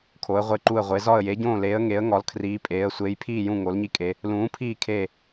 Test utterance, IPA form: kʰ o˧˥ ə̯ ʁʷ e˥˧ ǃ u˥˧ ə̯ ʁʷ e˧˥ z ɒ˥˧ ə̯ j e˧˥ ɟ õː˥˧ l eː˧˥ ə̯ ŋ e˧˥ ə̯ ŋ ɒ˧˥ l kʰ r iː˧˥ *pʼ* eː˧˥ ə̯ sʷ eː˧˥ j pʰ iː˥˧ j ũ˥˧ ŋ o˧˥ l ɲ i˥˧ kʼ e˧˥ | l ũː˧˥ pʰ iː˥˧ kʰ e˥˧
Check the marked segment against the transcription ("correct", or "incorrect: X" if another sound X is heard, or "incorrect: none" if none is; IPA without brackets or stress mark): correct